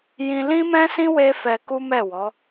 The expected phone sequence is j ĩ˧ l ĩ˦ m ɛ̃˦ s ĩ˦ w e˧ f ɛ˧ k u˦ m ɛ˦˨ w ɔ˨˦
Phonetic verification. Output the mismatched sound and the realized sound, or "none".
e˧ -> e˦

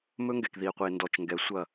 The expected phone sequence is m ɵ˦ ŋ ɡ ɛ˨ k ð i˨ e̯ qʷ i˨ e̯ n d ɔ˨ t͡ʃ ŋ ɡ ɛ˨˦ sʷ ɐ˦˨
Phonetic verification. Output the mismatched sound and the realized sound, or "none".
none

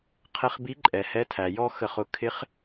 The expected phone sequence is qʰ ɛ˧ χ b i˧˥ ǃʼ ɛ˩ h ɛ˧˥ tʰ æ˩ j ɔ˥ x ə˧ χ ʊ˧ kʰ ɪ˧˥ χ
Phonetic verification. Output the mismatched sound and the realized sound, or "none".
none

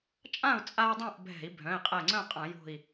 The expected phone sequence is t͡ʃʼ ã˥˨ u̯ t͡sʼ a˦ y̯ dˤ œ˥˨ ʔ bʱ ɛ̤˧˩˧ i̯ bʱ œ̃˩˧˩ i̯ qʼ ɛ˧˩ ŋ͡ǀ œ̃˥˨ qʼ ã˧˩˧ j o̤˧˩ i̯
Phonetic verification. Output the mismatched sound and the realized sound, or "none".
œ˥˨ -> œ̃˥˨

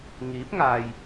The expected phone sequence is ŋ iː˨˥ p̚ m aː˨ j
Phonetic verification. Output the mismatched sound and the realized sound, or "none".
m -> ŋ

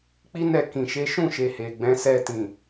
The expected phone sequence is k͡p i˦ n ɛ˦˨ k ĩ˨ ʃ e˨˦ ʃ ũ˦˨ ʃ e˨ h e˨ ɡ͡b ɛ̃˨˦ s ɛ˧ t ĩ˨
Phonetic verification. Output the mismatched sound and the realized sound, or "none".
none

